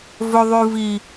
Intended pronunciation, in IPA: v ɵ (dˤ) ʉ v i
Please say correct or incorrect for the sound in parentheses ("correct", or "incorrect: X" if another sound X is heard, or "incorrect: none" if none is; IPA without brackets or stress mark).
incorrect: ðˤ